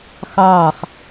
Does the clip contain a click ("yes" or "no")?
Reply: no